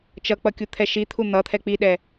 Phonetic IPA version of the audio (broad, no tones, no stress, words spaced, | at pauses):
t͡ʃʌk͡pʌkʲut̪ʰɛ ʃit̪ʰu n̪ʌt̪ʰɛ k͡piɗɛ